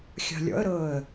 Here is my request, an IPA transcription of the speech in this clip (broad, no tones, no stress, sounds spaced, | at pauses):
xʲ ɑ̤ lʲ ɔ̰ ə̯ ɾ ɤː ə̯